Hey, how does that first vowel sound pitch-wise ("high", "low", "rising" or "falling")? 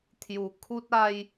low